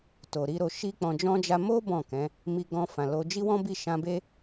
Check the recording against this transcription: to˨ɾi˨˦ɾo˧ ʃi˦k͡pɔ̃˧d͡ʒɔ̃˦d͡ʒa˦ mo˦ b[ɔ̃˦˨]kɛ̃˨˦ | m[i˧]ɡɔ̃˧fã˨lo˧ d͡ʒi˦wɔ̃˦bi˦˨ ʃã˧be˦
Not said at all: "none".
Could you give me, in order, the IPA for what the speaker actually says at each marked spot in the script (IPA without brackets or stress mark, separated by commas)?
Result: ɔ̃˦˨, i˧